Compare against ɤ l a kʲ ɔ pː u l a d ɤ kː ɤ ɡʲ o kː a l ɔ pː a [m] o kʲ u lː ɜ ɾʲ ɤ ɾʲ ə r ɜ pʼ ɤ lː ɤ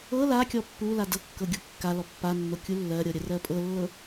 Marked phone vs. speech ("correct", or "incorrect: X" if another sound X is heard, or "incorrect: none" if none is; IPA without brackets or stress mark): incorrect: nː